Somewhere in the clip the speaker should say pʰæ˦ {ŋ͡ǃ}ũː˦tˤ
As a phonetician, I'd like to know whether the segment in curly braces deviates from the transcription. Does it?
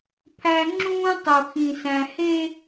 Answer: yes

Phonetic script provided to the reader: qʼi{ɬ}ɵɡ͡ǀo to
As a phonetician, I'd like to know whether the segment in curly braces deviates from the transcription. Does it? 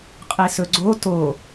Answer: yes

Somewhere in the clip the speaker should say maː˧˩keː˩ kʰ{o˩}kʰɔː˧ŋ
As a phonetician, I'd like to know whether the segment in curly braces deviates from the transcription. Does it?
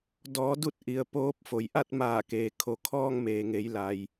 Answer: no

